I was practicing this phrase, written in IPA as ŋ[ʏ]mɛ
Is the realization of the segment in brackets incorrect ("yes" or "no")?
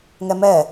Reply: yes